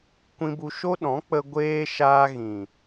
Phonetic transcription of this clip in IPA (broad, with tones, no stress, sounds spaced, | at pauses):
kʷ ĩ˧ b u˧ ʃ o˦ ɗ ɔ̃˨˦ k͡p ə˧ ɡʷ eː˦ ʃ aː˧ ɣ ĩ˨